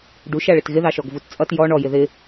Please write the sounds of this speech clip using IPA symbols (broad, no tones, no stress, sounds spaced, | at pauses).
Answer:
ɖ u ʃ æ ɭ ɪ t ɣ ɪ ð ɑ ʃ ɔ ɡ v u t t͡sʼ ʌ t j ɔ ɳ ɔ j ɪ ð ɪ